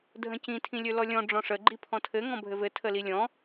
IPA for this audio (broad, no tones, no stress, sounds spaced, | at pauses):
dʱ ə̃ c ĩ tʰ ĩ lʲ ɵ l ɔ lʲ ɔ̃ ɖ͡ʐ ɔ̃ ʂ ə ɡ͡ǃ i pʰ ɔ̃ tʰ ɘ ŋ ɔ̃ bʱ ɘ v ɘ tʰ ə l i lʲ ɔ̃